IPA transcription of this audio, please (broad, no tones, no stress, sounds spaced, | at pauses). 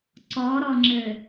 ǀ ɔ ɾ ɔ ŋ͡ǁ ɘ